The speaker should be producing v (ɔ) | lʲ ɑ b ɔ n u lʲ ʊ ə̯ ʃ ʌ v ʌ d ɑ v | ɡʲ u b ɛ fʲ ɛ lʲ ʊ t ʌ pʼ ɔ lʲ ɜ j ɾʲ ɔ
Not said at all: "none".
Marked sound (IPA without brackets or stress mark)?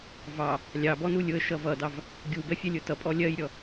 ɑ